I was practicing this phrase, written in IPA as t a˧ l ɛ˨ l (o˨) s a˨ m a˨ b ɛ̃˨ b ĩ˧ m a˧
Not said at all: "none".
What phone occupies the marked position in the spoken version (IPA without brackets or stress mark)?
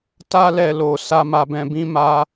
o˨